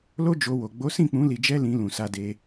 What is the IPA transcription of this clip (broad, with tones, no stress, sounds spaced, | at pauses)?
l o˦ d͡ʒ o˧ w o˨ ɡ͡b o˨˦ s ĩ˦˨ k͡p ũ˨˦ l i˧ d͡ʒ ɛ˦ l ĩ˧ l ũ˨ s a˧ d e˧